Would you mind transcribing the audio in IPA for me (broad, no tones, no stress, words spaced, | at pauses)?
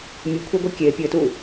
mʲukʷʰeɡʷi kʲe pʲɘtu